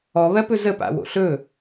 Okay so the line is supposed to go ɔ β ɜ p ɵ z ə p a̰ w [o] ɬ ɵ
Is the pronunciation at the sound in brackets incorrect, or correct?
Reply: incorrect